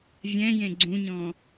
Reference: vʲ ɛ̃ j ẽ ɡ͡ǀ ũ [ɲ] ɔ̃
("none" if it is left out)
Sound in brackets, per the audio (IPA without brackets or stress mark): ɲ